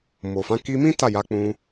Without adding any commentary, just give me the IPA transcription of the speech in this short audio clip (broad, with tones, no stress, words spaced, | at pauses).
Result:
mo˨fã˨˦ ki˧mĩ˦ ta˦˨ja˨˦k͡pũ˧